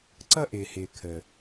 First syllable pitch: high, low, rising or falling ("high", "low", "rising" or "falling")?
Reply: high